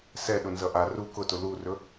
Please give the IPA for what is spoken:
s ɛ ɗ ʊ n z ʌ ʔ a r u k ʊ t ʊ l u r ɵ

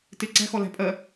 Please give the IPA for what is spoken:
t ɪ ǀ æ̤ x ɔ l æ̤ pʼ ɜ

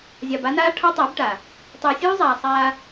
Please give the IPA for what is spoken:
zʲ ɑ˨ b a˦ n aː˦ ʈʰ ɔ˦ tˤ ɪː˨˦ b ʈ a˨ | tˤ ɪː˨ sʲ uː˦ zˤ aː˨ sˤ aː˦

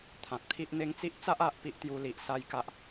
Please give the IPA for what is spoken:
t̪ʰ ã˨ k̚ t̪ʰ i˦ ʔ n̪ e˧ ŋ t͡s i˦ ʔ t͡s a˦ ʔ a˦ ʔ p i˦ ʔ t̪ j u˧ l i˨ ʔ s a˦ j k a˦ ʔ

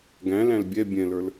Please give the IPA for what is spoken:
ɡ æ̃ l æ̃ l bʲ ɛ bʲ ɛ̃ l ə˞ l

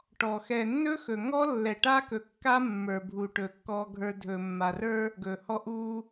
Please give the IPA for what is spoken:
ʈ ɔ˨ x ɛ˨ nː ɵ˦ x ɵ˨ ŋ ɔ˦ lː ɛ˨ ʈ a˦ k ɵ˨ kː a˦ mː ə˞˨ bʱ u˨ ʈ ɵ˨ kː ɔ˨ ɡʱ ə˞˨ dʱ ɵ˨ mː a˨ r ə˞˦ | ɡ ɵ˨ h ɔ˦ ʔ u˦

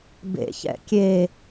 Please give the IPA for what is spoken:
b ḛ ç ɛ̰ kʲ e

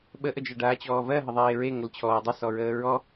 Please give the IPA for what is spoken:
ɓ ə ʔ ə d͡ʒ ɜ ɖ aː t͡ɕ ɔː v ɜ ɦ ə ðˤ eː ɹ e ŋ ə l t͡ɕʰ ɔː dˤ ə s ɔ ɹ əː ɹ ɔ

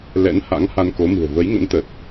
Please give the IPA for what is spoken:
l ɛ̰˧˥ n h a̰˧˥ ŋ h a˧ n k o˨˦ m ɨ̤˨˩ ə̯ v ə˨˦ j ŋ ə̰˧˥ n t̪ ə˨˩ t̚

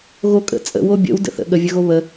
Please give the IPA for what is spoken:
ɣ o kʼ ə̰ t͡sʼ ə̰ w o bʲ ə̰ w d ə̰ θ ə̰ ɠ ə vʲ ə ɣ o β ə

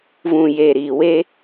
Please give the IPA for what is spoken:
v ũ˨ j e˨ ɾ i˨ w e˧

